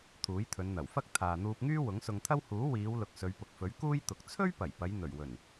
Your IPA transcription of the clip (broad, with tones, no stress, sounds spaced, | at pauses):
t̪ʰ uː˨˥ j t̪ʰ ɵ˨˧ n n̪ ɐ˨˩ w f ɐ˥ k̚ t̪ʰ aː˨ n̪ uː˧ p̚ ŋ yː˥ w ʊ˨˥ ŋ s ʊ˧ ŋ t̪ʰ ɐ˥ w h uː˨˥ w iː˨˧ w l ʊ˨ k̚ s ɵ˨˧ ɥ p ʊ˨ k̚ f ɵ˨˥ ɥ k uː˥ j t̪ ʊ˨ k̚ t͡sʰ ɵ˥ ɥ p ɐ˨˩ j p ɐ˨˧ j n̪ ɵ˨˩ ɥ w ɵ˨˩ n